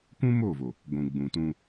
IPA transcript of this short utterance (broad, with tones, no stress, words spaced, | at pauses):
kʷũ˦mo˦˨vo˨ | ɡʷũ˨ɡ͡bũ˨ tũ˦